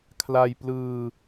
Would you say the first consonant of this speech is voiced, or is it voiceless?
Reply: voiceless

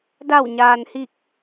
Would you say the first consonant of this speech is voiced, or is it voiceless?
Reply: voiced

